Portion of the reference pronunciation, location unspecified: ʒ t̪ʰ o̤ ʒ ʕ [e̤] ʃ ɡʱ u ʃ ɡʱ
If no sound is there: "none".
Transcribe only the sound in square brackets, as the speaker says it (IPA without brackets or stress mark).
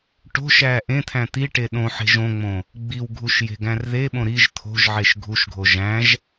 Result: e